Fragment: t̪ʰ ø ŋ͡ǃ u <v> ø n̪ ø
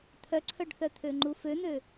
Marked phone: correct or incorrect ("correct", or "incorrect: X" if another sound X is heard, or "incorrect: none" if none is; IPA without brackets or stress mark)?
incorrect: f